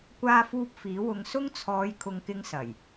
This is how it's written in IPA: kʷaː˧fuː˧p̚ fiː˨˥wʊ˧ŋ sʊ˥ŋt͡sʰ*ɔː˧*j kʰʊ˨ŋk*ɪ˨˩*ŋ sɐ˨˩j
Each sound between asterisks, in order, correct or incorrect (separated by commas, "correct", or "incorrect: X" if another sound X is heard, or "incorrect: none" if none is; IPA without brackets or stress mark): incorrect: ɔː˨˧, incorrect: ɪ˧